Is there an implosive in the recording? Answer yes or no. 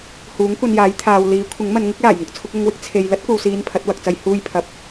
no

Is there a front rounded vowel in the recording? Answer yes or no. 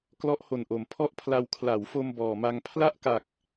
no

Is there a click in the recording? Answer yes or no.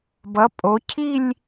no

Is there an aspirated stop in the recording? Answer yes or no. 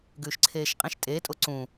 yes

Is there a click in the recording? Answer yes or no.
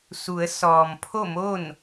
no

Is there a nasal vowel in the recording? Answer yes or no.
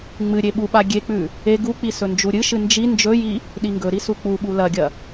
no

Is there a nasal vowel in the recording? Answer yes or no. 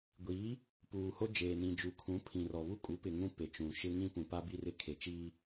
yes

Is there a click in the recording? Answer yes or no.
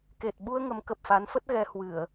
no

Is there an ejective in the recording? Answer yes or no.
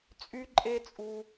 yes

